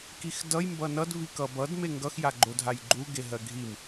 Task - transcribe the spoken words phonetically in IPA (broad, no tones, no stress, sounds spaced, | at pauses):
k i x d ʌ j m b ʌ n ʌ d v i k ʌ b ʌ d m e ŋ ɡ ʌ x j a ɡ͡ǃ o dʱ a j ɡ͡ǃ u ɡ e ɦ ɜ ɡʱ i m